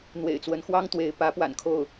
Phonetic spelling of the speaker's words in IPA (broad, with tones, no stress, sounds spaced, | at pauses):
n̪ w ḛ˨˩ ɪ̯ t͡s w ə˧˥ n x w ɑ˥ ŋ t̪ w e˧˥ ɪ̯ p ä˧˥ p w a̰˨˩ n kʰ o˥˩ ʊ̯